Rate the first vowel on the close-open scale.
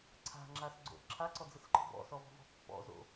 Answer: open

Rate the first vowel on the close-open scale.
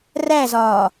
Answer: open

